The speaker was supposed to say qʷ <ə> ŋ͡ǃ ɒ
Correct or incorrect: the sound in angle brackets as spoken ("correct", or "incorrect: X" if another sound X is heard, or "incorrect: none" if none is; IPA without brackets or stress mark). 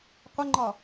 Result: correct